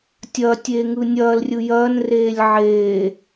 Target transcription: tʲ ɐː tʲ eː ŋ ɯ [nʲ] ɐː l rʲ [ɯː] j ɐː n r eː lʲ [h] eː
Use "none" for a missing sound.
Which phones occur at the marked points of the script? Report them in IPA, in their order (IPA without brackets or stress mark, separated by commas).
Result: nʲ, ɯ, ʕ